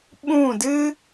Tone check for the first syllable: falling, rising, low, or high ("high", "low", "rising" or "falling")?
falling